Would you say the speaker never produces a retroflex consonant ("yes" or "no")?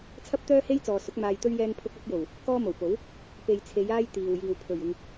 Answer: yes